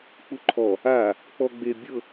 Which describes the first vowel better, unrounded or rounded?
rounded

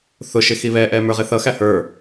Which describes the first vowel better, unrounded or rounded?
rounded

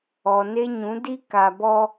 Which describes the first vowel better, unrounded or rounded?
rounded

